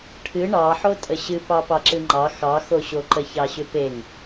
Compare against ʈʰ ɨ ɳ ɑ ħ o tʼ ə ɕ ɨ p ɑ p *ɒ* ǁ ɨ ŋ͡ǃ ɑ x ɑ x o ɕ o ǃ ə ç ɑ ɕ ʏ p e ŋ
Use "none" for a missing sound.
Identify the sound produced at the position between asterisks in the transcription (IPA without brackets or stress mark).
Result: ɑ